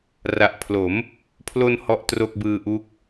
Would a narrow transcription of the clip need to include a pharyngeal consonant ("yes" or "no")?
no